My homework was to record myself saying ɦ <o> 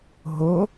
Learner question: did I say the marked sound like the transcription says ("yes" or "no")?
yes